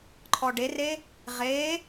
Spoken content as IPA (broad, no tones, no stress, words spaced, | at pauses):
ǃʰɔɖere | ʁe